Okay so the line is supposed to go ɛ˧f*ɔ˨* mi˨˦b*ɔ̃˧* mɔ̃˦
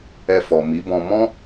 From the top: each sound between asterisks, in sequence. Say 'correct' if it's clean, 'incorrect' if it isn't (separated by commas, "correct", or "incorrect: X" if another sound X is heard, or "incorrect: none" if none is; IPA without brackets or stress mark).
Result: correct, correct